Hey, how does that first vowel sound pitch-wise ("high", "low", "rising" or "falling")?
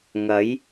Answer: rising